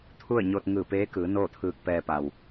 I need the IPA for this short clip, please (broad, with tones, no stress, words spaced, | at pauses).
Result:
t̪ʰu˥˨ə̯ɲo˧t̚ ŋɯː˧˩peː˧˥kɯː˩˧ noː˥˨t̪ʰɯː˧k̚pɛː˧ pa˩w